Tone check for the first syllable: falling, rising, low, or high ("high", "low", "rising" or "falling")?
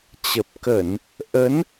low